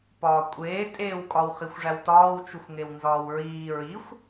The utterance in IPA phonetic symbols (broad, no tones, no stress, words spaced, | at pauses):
pɒːkʷʼeː tʼeːwkʼɒw χixʷʐæwtɒːw t͡ʃuxʷŋewnzɒːwɹiː ɹixʷ